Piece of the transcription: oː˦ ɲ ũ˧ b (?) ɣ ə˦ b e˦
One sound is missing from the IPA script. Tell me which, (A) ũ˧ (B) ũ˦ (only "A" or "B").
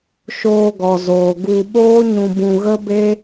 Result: A